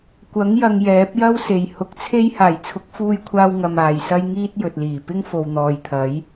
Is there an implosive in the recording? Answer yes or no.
no